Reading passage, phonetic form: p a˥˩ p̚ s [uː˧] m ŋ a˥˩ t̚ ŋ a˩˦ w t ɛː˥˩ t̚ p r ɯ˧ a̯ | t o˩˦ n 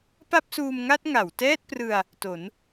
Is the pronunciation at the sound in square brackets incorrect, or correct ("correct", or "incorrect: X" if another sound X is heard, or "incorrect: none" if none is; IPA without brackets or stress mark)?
correct